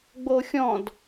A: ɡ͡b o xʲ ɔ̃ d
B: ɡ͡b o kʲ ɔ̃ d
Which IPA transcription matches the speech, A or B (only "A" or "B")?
A